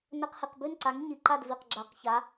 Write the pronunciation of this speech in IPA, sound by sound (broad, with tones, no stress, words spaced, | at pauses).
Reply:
nɘ˧qhi˩˧˩q bʉ˥˨nǀa˨˥ŋ ɲi˩˧˩ǃa˥˨dvi˩˧˩q ɡ͡ǁa˨˩˦qça˨˥